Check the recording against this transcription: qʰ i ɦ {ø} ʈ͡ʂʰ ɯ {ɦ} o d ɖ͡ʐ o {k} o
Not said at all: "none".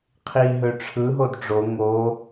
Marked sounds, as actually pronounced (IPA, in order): ø, ɦ, ŋ

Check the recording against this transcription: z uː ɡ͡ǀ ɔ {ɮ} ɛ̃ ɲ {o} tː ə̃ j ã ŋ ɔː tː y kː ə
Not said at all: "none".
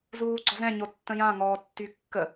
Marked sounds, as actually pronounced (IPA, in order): z, o

